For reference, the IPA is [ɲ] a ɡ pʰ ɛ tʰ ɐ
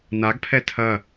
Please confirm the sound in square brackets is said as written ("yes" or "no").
no